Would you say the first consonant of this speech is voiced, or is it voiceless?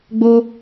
voiced